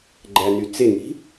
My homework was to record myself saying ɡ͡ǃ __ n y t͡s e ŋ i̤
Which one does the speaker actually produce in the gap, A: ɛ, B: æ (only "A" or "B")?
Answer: B